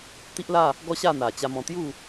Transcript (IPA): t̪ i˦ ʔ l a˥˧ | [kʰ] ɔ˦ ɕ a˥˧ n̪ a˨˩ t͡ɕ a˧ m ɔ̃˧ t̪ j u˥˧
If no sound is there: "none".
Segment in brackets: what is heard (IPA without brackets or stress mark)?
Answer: ɡ